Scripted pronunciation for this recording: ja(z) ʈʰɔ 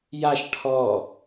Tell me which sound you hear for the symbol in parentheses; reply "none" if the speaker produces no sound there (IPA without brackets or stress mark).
ʃ